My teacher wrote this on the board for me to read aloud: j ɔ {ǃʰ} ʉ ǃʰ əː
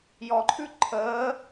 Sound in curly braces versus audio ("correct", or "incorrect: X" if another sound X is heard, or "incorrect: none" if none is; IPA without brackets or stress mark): correct